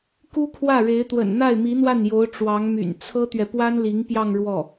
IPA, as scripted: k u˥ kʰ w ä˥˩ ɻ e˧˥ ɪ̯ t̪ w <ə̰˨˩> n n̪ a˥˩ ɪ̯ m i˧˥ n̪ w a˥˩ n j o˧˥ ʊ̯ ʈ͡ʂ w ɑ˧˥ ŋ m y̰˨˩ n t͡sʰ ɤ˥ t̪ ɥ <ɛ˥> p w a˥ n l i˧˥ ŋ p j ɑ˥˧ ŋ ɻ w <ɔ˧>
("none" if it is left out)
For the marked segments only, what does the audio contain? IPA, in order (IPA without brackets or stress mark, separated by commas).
ə̰˨˩, ɛ˨, ɔ˥˩